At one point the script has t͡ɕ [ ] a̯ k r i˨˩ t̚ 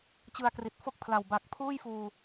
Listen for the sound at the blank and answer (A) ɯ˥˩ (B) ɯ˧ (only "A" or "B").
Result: B